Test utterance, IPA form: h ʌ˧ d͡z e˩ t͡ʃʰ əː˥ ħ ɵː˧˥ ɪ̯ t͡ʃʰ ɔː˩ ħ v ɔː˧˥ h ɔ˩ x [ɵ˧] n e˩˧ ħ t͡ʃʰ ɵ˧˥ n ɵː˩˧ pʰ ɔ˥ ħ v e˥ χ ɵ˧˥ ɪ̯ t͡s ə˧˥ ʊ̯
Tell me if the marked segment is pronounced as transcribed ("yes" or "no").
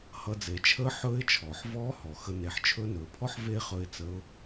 no